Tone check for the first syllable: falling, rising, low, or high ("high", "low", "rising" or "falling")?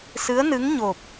rising